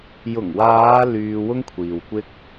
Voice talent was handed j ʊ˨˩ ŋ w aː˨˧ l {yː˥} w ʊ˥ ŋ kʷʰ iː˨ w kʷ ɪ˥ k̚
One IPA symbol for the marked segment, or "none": yː˧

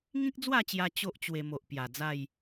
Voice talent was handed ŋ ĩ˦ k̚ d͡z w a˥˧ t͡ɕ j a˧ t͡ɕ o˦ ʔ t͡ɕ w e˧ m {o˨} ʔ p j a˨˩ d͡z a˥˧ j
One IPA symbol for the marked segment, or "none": o˨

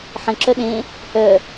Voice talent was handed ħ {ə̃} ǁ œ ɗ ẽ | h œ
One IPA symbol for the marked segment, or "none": ə̃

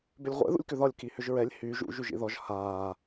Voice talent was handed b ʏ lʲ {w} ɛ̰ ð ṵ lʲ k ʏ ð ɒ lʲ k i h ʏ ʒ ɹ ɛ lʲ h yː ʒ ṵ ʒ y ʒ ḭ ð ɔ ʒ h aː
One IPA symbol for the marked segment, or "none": ʁʷ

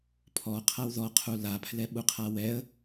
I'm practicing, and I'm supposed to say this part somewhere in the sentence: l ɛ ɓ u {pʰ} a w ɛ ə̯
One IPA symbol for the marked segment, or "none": qʰ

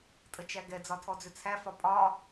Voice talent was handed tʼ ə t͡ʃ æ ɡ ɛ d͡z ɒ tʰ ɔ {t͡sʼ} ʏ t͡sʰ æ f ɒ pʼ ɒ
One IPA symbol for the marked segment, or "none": d͡z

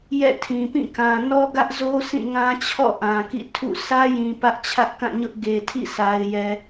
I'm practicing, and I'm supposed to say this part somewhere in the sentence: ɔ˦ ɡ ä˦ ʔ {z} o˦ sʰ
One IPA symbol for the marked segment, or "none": z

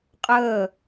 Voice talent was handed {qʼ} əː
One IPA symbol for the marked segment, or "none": qʼ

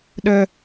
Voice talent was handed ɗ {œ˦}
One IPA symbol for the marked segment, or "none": œ˦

